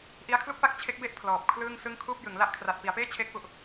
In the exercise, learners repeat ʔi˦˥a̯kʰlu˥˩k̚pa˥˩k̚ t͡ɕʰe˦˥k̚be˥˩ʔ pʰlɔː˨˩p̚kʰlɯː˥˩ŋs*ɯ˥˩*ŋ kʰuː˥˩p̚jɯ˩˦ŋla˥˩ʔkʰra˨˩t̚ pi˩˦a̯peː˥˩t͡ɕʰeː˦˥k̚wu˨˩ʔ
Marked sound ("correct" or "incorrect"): correct